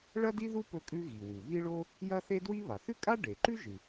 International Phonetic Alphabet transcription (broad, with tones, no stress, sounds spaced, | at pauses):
ɭ ɐ˥ d i˥ ð u˥ p ɵ˥ kʼ ʉ˥ ɣ i˩ w u˩ β i˥ ɭ o˥ | j ɐ˥ θ e˥ d w i˥ β a˩ θ ʉ˥ kʼ a˥ ɖ e˩ ǃ ʉ˥ ʒ ɨ˩